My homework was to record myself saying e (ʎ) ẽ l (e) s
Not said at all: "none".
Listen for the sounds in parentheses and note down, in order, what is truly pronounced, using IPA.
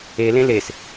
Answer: l, e

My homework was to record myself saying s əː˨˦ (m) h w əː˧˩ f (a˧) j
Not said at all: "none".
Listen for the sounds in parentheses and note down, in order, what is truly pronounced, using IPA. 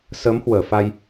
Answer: m, a˧

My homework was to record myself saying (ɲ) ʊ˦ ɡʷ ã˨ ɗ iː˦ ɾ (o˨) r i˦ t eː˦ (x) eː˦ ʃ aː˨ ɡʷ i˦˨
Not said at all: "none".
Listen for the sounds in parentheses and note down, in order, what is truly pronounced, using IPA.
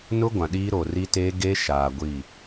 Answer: n, o˨, ɡ

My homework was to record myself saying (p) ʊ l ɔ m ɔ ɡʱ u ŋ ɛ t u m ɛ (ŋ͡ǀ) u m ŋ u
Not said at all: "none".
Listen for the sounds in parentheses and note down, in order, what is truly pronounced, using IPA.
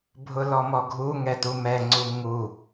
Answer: bʱ, ŋ͡ǀ

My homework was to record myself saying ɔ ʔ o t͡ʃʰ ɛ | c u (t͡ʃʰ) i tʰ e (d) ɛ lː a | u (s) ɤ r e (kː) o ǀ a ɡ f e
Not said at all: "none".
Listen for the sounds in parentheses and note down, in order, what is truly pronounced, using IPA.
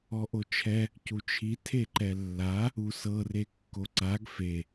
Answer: t͡ʃʰ, ǃ, s, kː

